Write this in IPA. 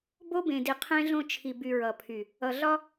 b o˦ b ẽ˨ d i˨ qʰ ẽ˦ ɮ õ˦ t͡ʃʰ i˨ b y˨ ɹ ʌ˨ pʰ y˨ | ʌ˨ ɮ ɒ˦

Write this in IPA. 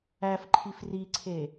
æ f ǃʰ i f r i ǀʰ e

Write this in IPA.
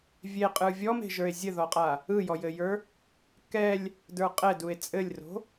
vʲ e qʼ ɯ vʲ ɔ m e̤ ʒ ə˞ e̯ zʲ ɘ ð ɔ qʼ a | ɯ j ɔ j ɘ j ə˞ | k ɛ lʲ | d ə˞ qʼ ɛ d u e̯ t͡sʼ ɘ lʲ r o̤

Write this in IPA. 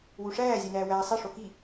w u ʂ æː zʲ æ n æː w æː sˤ i ʂ o k i

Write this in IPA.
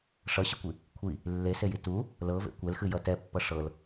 ʂ ʌ ɕ ə kʷ i | kʷʰ i | lː e s e j i t u | l ɤ v ḛ kʷ ɛ l x ɨ j ʌ t ɛ pː ʌ ʂ ɤ l

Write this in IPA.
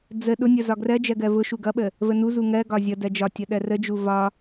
d͡z ə ɗ ʊ nʲ ʌ z ɒ ɡ r ɜ d͡ʒ ɜ ɡ ɜ v ʊ ʃ u ɡ ʌ ɓ ə | v ə n u z u ŋ ɜ ɡ ɒ zʲ ʌ d ɜ d͡ʒ ɒ tʲ ʌ ɗ ɜ r ə d͡ʒ u v ɒ

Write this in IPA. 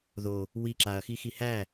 ð o | w i ǁ a ɐ̯ x i x i h æ

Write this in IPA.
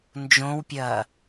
n d͡ʒ õ w pʲ ɐː

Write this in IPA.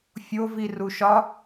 fʲ o v i r u ʃ ɒ

